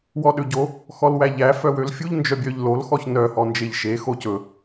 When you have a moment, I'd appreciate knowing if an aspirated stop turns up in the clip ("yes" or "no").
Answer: no